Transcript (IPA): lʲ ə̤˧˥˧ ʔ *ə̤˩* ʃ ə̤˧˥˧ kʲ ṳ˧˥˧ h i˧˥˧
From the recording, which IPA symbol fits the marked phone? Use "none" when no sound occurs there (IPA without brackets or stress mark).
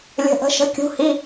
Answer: ə̤˧˥˧